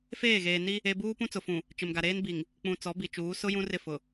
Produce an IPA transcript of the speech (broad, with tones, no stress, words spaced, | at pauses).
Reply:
feː˦˨ɣeː˨ ni˦ | e˦ buː˦pũ˦t͡sʊ˨fũ˨ | t͡ʃɪ˨mɡa˨ɾeː˦n bi˨ŋ | k͡pũ˨ t͡sɔ˨˦bi˨t͡ʃuː˨˦ sʊ˦ jũ˦rɪ˦˨ fʊ˨